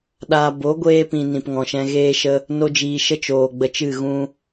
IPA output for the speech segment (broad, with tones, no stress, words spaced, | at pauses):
ɗaː˧ bo˨˦ɡʷeː˧pĩ˨ nĩ˨pŋɔ̃˨ʃɛ̃˧ ɣeː˦ʃə˦ | no˧d͡ʒiː˨ʃə˦ t͡ʃoː˨ɡ͡bə˧t͡ʃɨ˦˨ ɣũ˧